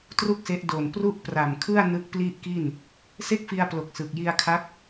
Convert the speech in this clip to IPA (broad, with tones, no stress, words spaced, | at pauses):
tru˥˩k̚se˦˥ʔ do˨˩npru˥˩ʔpra˨˩mkʰɯ˥˩a̯ nɯ˦˥k̚pli˥˩ʔki˥˩n | se˥˩k̚fi˧a̯plo˨˩k̚ sɯ˨˩k̚ ji˧a̯kʰa˦˥k̚